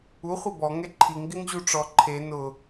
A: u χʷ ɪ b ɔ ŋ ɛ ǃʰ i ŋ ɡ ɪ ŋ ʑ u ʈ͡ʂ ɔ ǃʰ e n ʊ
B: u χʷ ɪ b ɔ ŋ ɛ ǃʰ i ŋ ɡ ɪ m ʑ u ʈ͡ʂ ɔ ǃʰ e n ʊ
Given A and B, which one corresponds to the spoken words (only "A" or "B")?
A